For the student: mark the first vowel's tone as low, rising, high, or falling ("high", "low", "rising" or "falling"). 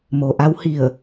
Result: low